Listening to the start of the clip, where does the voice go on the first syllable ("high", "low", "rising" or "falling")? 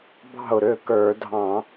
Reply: falling